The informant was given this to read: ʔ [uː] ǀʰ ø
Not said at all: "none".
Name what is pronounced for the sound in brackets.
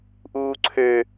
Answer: uː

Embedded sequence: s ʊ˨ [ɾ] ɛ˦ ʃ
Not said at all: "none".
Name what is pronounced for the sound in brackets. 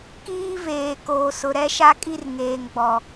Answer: ɾ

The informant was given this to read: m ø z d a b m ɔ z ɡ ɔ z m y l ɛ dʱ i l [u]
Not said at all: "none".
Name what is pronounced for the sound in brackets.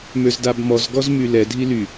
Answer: y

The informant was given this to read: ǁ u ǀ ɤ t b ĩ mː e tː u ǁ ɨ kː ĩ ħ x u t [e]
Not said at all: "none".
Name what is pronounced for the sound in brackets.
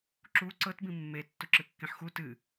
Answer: ɨ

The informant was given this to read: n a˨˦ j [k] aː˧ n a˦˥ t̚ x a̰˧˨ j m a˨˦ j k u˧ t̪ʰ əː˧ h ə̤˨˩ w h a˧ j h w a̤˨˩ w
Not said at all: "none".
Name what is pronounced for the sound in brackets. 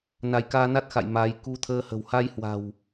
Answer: k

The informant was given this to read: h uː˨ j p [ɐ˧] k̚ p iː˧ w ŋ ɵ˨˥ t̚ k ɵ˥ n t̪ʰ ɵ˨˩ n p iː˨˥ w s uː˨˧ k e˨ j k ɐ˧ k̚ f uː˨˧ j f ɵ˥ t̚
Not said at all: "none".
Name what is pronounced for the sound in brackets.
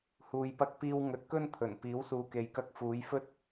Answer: ɐ˧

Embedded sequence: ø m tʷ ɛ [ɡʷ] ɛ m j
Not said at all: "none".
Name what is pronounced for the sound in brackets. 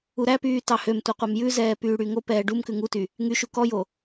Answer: qʷ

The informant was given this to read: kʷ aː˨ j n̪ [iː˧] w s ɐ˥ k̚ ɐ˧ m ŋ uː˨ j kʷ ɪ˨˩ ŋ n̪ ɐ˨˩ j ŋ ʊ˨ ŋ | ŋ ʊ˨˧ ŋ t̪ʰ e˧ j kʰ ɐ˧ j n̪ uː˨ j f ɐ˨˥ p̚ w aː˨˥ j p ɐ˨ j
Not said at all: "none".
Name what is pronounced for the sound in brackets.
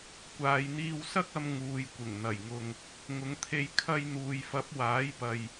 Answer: iː˧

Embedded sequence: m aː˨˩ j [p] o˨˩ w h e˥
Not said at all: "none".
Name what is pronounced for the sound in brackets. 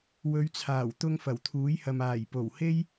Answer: p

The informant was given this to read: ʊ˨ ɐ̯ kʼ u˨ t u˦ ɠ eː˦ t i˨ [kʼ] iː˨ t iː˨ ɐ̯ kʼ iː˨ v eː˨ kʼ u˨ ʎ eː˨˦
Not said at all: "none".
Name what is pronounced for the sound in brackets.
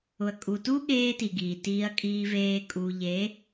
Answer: ɡ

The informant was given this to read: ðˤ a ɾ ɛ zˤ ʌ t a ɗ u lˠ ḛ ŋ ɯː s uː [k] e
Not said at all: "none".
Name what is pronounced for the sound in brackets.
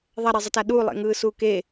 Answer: k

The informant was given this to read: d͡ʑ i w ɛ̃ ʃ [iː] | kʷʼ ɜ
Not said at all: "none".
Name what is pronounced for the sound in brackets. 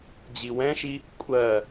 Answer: i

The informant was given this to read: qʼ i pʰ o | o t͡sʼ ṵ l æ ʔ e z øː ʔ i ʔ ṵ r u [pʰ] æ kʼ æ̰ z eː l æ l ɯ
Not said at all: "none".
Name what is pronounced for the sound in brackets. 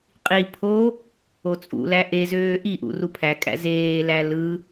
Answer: pʰ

